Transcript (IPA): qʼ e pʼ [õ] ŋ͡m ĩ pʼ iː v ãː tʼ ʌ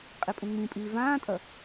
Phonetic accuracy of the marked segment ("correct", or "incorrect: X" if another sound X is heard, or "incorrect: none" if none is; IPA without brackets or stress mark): incorrect: ũ